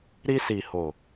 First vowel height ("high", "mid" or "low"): high